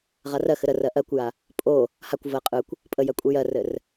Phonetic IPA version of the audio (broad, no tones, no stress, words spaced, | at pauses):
ʁarɜxɘ ɾərɜ ʔɜkʷja | pʼo | hakʷvɜ qʼɯkʷ | pʼəjɜ kʷʼijɜrɘr